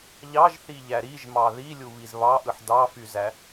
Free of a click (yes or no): yes